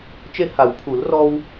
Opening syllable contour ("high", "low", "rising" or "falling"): high